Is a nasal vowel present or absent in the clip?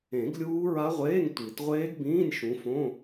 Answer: present